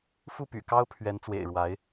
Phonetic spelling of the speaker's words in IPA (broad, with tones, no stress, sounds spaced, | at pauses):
f u˥˩ p y̰˨˩ k ɑ˥ ʊ̯ pʰ ɥ ɛ˧˥ n t͡s w ḛ˨˩ ɪ̯ ɻ w a˧˥ ɪ̯